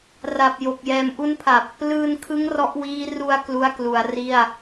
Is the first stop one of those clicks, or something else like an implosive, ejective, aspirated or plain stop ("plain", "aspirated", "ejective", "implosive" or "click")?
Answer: plain